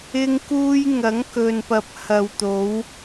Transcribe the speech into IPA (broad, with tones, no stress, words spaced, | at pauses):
ɪ˧ŋkuː˧j ŋɐ˨˥ŋkɵ˨npɐ˨˥p̚ hɐ˨wt̪o˨˧w